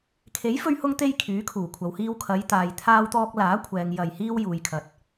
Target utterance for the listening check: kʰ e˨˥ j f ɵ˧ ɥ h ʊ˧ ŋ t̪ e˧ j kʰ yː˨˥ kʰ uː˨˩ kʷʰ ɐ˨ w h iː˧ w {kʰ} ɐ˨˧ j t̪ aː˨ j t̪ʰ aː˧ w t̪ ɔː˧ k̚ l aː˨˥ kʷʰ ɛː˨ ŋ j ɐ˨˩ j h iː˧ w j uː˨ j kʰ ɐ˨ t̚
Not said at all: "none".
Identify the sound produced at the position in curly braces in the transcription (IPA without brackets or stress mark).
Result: kʰ